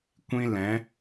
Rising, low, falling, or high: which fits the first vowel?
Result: high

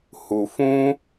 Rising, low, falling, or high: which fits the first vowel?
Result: low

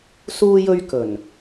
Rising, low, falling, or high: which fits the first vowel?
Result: high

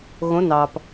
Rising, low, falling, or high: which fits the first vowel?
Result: rising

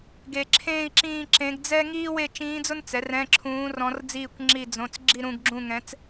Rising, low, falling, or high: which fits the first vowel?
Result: low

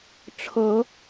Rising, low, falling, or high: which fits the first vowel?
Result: low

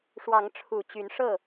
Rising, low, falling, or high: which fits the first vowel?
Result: rising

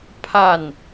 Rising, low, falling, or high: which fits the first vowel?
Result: falling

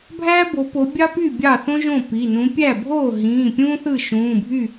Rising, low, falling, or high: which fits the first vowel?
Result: high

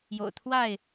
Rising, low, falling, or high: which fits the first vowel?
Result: low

